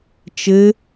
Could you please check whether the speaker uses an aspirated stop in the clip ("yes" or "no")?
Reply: no